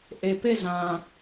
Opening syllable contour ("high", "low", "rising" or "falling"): low